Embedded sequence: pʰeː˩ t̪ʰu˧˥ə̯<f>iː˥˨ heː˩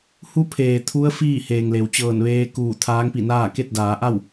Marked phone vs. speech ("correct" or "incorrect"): correct